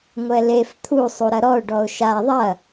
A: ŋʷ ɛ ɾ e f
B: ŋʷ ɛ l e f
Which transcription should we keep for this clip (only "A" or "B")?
B